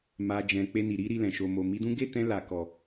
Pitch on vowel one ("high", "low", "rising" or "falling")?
low